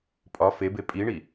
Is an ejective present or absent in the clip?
present